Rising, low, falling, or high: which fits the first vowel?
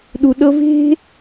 low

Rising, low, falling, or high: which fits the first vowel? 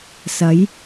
rising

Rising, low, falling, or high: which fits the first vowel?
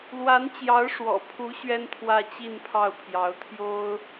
rising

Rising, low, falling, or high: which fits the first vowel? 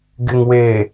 low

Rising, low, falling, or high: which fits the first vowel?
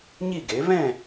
falling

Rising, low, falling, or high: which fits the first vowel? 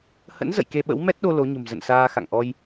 rising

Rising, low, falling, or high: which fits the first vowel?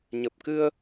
low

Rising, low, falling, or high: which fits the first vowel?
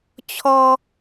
high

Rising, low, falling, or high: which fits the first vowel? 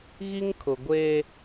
high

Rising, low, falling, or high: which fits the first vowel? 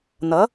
rising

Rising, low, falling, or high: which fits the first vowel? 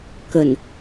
low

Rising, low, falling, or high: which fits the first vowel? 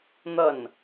falling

